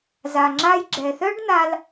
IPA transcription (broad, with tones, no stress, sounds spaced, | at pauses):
z a˩ ŋ͡ǁ a˧ j ɡ͡ǁ ɛ˩ θ œ˥ ɖ n̪ a˧ l